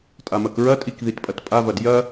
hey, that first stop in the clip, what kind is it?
ejective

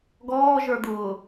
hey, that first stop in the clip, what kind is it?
plain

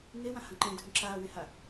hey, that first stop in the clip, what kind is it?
click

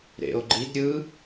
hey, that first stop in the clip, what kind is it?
click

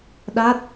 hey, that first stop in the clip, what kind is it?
implosive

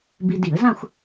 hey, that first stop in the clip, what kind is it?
plain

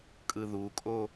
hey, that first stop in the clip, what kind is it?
ejective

